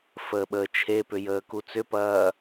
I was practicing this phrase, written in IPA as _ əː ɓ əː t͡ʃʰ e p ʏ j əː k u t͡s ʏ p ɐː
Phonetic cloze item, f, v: f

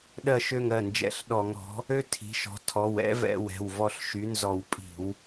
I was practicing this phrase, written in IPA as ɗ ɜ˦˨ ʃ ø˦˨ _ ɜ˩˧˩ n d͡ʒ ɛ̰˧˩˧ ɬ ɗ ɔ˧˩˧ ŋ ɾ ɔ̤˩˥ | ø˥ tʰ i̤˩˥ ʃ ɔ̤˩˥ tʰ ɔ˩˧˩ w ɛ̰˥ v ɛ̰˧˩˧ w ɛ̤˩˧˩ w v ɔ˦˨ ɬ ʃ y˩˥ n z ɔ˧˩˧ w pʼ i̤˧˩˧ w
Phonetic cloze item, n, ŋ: ŋ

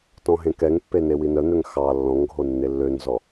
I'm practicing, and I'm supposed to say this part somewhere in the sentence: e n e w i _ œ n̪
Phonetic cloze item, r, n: n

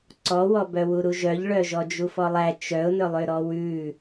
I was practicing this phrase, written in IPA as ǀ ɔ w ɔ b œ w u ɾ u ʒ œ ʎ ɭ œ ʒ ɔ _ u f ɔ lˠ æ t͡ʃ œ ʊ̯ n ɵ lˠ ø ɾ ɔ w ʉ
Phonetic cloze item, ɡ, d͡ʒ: d͡ʒ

